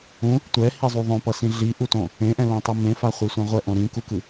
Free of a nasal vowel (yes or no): no